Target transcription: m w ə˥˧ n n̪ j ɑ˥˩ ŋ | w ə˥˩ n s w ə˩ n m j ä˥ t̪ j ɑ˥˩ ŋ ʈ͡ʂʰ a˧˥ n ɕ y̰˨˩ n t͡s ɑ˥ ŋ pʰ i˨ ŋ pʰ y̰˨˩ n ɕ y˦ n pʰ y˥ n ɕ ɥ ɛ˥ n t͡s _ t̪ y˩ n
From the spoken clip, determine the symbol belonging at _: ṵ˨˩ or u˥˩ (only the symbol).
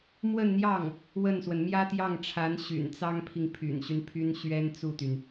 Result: u˥˩